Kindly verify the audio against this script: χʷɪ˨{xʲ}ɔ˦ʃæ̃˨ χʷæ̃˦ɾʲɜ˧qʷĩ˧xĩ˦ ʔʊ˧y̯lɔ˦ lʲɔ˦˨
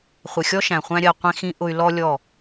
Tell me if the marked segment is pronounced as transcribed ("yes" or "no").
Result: yes